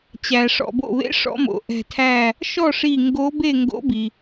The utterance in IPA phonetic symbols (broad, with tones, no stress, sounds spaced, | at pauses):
t͡ɕ æ˩ ʂ ɔ̰˩ b o̰˧˩ β ḛ˧˥ ʂ ɔ̰˧˥ m o̰˩ ʔ ɛ̤˧˩ tʰ æ˥˨ | ʃ ɔ˥˨ ʂ i˧˩ ŋ ɡ o˧˥ b e˥˨ ŋ ɡ o̰˧˥ b i˩